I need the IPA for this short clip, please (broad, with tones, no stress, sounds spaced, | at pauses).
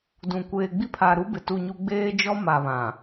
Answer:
d ũ˨ kʷ eː˨ ɡ͡b i˦ pʰ a˨ ɾ u˦ b ɪ˨ t u˦˨ ɲ u˦ ɡ͡b eː˦ d͡ʒ ɔ˦ m a˨ β ã˨